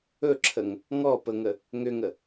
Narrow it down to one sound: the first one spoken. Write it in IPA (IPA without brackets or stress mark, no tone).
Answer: ɵ